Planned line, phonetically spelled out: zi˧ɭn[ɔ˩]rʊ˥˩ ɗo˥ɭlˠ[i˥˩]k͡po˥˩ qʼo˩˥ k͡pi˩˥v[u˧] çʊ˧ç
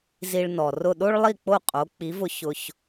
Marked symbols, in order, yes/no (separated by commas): yes, yes, no